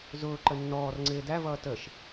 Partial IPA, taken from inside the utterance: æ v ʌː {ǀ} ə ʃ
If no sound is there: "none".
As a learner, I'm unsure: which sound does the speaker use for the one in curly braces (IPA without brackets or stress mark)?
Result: t